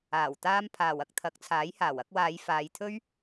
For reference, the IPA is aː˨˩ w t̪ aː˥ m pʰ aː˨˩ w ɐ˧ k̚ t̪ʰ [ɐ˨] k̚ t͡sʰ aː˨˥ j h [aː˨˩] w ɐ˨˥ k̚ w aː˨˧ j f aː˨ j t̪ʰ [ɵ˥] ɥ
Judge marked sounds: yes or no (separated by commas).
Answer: no, yes, yes